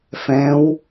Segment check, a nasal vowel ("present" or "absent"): present